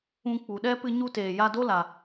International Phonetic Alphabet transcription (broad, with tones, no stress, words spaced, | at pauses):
ũ˧k͡pu˨ɗɛ˦ pɨ˧ɲu˧ teː˨ ja˦ do˦la˨